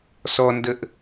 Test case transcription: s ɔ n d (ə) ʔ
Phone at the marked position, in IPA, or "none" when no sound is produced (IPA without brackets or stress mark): ə